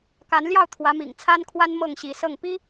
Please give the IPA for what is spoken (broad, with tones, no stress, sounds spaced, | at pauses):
k a˧˥ n l j ɑ˥˩ ʊ̯ t̪ʰ w ä˧˥ m ḭ˨˩ ŋ t͡sʰ a˥ n kʰ w a˥ n m ɤ˥˩ ŋ ɕ i˧˥ s ɤ˥˩ ŋ p i˥